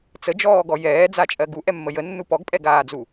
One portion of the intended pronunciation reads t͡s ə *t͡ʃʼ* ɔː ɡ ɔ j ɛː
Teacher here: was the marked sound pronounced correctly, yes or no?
no